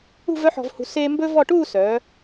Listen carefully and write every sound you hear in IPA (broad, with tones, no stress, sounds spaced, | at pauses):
ṳ˥˧ v œ˥ ħ ɔ̤˧ v h ṳ˧ s eː˥ m b ɵ˥ v ɔ˥˧ ʈ uː˥˧ s œː˩˧